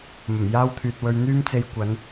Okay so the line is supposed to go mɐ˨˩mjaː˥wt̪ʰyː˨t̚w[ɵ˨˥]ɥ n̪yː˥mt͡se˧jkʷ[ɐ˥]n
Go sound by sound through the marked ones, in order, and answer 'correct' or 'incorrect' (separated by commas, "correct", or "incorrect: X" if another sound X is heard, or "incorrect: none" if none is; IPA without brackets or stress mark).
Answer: incorrect: ɵ˧, incorrect: ɐ˨˧